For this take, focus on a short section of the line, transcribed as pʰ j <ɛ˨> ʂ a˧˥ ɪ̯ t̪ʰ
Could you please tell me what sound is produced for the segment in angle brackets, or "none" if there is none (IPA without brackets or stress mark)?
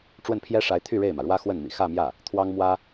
ɛ˥